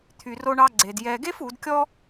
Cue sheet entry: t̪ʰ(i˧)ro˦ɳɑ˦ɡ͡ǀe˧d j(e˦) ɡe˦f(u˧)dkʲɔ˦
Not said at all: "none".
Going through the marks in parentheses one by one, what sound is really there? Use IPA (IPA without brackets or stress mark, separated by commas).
y˧, ɛ˦, u˨˦